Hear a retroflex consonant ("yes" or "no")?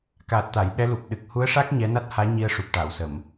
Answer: yes